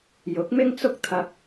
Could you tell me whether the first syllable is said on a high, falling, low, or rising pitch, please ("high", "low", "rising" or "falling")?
rising